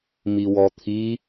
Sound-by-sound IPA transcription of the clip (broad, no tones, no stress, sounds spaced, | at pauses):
m i w ɔ t̪ʰ i